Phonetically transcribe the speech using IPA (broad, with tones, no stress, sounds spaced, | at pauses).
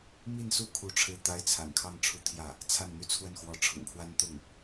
m i˥˧ n s u˥˧ kʰ u˥˧ ʈ͡ʂʰ ɻ̩˥˩ t̪ a˥ ɪ̯ t͡sʰ a̰˨˩ n kʰ ɑ˥˧ ŋ ʈ͡ʂʰ u˥˧ t̪ʰ j ä˥˩ | t͡sʰ a˥˩ n n̪ y˥ t͡sʰ w ə˥˩ n x w ɔ˧˥ ʈ͡ʂʰ ʊ̰˨˩ ŋ kʰ w a˥ n t̪ ʊ˥˩ ŋ